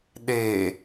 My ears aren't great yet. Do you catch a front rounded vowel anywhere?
no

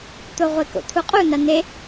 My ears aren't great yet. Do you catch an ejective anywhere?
yes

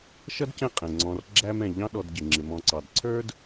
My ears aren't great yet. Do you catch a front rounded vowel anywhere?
no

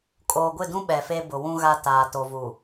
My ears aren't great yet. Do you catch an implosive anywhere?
yes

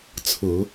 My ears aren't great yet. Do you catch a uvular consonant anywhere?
no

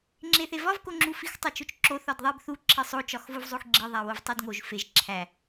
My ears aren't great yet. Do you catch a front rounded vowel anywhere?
no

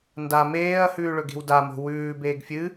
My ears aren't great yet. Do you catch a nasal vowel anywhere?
no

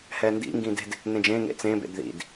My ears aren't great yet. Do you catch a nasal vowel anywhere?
yes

